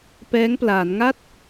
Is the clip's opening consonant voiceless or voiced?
voiceless